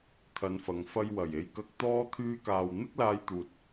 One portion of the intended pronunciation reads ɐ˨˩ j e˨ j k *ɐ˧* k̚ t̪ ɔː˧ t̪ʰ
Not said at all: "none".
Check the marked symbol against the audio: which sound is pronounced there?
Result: ɐ˧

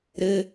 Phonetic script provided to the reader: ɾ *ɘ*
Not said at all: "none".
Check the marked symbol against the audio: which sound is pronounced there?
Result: ɘ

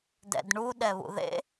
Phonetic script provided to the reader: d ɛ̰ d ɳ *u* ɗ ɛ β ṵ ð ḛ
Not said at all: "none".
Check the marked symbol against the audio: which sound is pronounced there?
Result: u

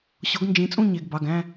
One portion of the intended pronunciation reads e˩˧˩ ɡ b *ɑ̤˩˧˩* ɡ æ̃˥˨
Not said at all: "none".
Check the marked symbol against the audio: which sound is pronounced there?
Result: ɑ˩˧˩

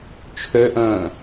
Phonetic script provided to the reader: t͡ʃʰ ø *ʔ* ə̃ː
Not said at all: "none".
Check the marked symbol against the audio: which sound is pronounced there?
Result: ʔ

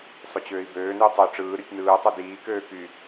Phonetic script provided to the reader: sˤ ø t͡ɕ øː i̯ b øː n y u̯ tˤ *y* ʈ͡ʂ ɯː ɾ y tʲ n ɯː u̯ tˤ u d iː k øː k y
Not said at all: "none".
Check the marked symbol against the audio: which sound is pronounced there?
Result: ø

